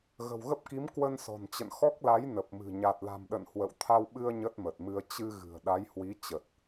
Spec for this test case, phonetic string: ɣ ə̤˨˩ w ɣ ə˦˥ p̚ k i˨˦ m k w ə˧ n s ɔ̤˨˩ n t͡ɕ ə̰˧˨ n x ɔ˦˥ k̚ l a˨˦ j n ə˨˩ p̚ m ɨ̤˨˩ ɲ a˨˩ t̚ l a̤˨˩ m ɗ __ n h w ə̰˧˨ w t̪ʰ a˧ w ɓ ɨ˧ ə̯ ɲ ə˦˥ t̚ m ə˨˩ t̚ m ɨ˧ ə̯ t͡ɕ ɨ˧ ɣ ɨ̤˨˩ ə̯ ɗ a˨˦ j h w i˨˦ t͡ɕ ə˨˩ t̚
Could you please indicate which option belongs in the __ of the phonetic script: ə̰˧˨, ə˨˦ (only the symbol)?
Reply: ə̰˧˨